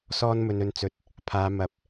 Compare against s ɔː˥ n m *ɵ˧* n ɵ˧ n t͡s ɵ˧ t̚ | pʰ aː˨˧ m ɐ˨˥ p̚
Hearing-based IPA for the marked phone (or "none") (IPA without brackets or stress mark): ɵ˧